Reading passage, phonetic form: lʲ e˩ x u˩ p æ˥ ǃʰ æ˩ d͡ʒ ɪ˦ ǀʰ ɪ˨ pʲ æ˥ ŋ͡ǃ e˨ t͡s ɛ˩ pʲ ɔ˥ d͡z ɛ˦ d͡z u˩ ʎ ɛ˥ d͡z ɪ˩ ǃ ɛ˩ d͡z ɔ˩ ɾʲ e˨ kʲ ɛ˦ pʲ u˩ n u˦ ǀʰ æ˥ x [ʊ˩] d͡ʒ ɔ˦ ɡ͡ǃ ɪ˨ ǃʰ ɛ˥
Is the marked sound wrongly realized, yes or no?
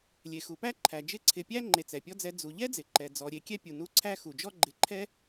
yes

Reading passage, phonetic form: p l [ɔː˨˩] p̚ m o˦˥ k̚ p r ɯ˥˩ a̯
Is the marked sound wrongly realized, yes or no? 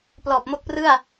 no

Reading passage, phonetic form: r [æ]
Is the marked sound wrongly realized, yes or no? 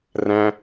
yes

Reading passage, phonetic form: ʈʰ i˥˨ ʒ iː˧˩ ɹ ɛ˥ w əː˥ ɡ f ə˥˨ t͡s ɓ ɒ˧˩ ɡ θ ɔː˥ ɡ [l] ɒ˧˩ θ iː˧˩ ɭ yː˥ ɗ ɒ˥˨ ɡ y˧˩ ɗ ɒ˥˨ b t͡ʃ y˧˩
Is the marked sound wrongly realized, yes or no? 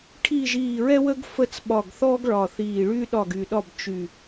yes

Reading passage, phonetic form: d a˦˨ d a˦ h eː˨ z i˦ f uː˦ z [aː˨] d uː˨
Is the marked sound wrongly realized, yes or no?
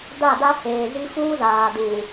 no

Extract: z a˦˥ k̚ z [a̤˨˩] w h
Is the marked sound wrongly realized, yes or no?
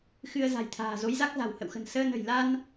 no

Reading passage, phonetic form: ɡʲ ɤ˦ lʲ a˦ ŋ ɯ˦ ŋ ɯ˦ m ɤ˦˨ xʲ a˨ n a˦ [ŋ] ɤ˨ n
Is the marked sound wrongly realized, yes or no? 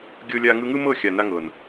no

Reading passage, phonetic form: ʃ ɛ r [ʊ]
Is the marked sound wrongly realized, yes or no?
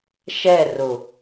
no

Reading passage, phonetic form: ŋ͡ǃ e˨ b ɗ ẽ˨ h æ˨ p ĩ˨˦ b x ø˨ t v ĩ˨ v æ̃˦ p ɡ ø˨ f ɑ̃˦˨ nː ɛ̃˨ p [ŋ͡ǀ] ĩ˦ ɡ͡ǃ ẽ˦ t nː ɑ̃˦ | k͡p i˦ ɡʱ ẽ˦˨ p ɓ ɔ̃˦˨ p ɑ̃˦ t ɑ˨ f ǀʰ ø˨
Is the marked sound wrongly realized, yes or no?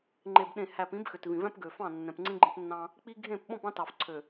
no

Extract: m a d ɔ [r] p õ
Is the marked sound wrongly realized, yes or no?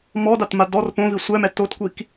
no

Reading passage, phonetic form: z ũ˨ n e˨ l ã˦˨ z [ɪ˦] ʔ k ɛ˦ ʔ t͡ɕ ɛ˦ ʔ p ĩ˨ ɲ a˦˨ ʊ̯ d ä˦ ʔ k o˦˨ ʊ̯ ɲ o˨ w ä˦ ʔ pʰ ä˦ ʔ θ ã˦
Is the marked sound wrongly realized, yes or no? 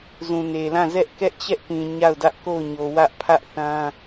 yes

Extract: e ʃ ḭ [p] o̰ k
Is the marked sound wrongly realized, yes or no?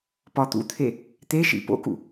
no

